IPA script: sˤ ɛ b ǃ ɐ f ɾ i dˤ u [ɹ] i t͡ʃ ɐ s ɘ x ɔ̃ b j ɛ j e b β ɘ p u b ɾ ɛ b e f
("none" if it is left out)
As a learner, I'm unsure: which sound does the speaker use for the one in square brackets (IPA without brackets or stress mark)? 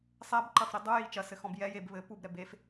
j